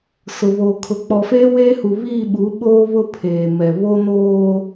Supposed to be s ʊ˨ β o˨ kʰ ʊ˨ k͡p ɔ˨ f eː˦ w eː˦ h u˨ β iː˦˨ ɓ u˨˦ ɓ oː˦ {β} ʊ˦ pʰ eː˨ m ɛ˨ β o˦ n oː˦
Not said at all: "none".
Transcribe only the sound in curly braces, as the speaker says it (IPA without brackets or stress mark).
β